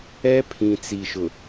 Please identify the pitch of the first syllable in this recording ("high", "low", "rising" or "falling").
high